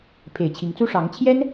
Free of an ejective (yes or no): yes